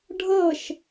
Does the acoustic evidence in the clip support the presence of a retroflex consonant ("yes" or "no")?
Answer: yes